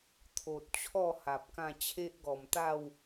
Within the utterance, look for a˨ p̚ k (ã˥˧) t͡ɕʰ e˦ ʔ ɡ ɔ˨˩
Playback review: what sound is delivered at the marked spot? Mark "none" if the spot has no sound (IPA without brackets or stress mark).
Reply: ã˥˧